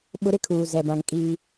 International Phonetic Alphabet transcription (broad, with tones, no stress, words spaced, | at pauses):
ɓʊ˦ ɾɪ˦kʰuː˨zɛ˨bã˨ŋ kʼiː˦